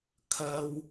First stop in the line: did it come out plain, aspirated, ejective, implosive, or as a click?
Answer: aspirated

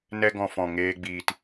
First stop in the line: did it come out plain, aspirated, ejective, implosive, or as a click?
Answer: plain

